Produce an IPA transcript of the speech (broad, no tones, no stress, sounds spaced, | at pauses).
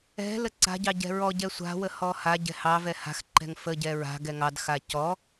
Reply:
ɛ̤ l ə ǀ a̤ ɟ ɑ ɟ ɛ̤ ɹ ɔ ɟ ɛ sʷ a̤ w ə h ɔ h a ɟ ɛ̤ h ɑ v ɛ h a̤ x ǃ ɛ̤ ŋ f ə ɟ ɛ ɹ a̤ ɡ ɛ ŋ ɑ d x a c ɔ